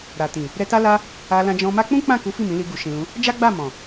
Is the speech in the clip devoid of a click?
yes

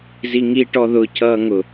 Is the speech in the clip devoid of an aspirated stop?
no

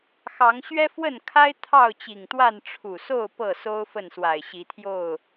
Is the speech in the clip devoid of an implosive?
yes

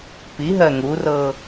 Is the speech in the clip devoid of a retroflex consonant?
yes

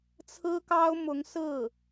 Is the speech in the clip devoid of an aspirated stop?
no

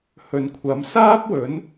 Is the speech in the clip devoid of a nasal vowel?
yes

